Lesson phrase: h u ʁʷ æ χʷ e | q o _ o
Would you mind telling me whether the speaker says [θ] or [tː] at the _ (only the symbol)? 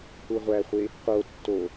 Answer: tː